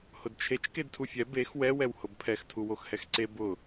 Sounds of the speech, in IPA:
hʊdt͡ʃʰet͡ʃ kedtʰufʲɛ bex wɛ wɛwhʊbpʰɛx tʰuwoxhɛxǀe bʊ

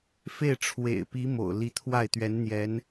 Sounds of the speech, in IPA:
fe˥˩ɪ̯ʈ͡ʂʰwḛ˨˩ɪ̯pi˧˥ mo̰˨˩ʊ̯li˧˥t̪ʰwa˥˩ɪ̯ t̪ɥɛ˧˥nn̪jɛ˧˥n

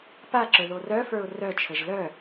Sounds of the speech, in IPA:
paǁə˞ ðorœfə˞ʊ̯ rœt͡ʃʰəʒ lœ

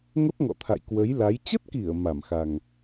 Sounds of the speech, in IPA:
ŋə˦˥p̚ŋɔ̰˧˨ t̪ʰa̰˧˨jkwə˨˦jla˨˦j t͡ɕə˦˥t̚ki˧˩ə̯ ma˧˩mxa˨˩ŋ

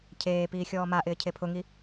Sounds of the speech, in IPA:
cʰeːpiː xʲɔːmaʔɪː cʰepʰʊŋi

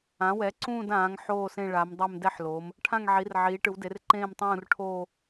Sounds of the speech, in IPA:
ã˩˧wɛ˩˧ ǀũː˦˨dãː˩˧ŋ ħoː˦˨sẽ˦˨ɭa˩˧mdˤɛ˦˨m dɛ˦˨ħloː˩˧m | ʈʰã˦˨ŋʕi˩˧r ʕiː˩˧ʈɯ˩˧wde˩˧r ǃẽː˦˨mtˤũː˦˨rʈʰoː˦˨

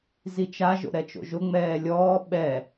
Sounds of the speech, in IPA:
zit͡ʃa ʒo̰ɾɛt͡ʃo̰ʒʊ ŋ͡mɛːlʲɔː ɓɛ

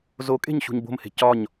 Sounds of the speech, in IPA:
zokʼe̤ɲ ɕṳɲbo̤mhe̤ cɒɲ

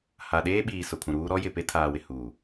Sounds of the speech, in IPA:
ha˨ɗeː˦ɓiː˨ sʊ˨pʰũ˨ɾuː˦ ɾɔ˦jɪ˨pe˦ tʰaː˨wɪ˨ huː˨

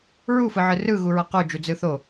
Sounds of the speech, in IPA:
ɹufɯʕɯ rɯ ɣuɹʌqud͡ʒu d͡zɯθo

